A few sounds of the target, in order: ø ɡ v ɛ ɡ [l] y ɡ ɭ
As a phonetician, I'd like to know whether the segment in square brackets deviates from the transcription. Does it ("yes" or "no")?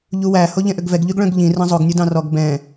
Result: yes